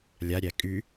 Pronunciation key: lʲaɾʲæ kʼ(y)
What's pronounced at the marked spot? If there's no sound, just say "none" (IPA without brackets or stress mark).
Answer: y